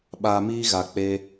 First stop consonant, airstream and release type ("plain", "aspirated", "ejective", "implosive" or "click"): implosive